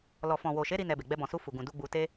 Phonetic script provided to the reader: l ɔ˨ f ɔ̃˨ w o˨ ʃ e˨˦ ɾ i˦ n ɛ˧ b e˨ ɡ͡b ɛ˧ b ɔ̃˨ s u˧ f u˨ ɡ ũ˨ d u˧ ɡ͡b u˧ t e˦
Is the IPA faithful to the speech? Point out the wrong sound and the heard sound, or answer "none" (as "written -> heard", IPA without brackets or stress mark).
none